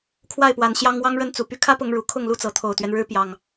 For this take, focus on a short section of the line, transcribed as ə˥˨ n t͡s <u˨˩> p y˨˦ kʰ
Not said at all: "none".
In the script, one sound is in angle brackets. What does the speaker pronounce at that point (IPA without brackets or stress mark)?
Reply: u˨˩